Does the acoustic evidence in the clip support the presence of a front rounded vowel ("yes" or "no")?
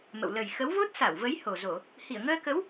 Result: no